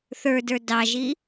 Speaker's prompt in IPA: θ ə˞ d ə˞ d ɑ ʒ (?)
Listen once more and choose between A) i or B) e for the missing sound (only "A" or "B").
A